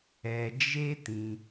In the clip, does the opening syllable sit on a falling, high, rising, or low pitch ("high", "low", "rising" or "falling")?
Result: low